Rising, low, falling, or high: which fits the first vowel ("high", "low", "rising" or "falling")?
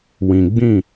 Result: low